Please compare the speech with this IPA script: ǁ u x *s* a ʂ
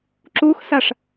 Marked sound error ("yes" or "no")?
no